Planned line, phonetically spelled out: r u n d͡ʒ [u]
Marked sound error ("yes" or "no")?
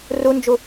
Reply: no